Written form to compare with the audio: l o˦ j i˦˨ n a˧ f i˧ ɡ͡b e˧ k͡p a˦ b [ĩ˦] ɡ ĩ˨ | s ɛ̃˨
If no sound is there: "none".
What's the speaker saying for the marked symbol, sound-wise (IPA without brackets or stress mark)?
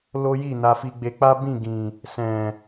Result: ĩ˦˨